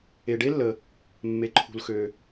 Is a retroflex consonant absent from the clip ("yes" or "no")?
no